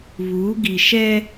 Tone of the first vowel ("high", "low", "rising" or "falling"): rising